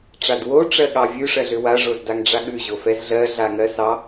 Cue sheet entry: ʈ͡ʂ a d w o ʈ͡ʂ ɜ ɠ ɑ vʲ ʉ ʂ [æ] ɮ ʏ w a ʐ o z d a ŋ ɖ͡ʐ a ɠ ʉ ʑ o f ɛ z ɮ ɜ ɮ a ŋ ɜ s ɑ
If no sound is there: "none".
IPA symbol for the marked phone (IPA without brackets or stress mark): ɜ